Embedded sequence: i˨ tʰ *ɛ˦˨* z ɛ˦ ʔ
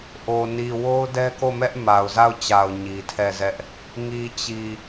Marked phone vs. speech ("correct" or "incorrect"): correct